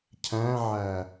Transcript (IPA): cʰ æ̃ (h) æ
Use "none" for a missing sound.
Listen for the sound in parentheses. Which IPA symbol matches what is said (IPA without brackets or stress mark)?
ʕ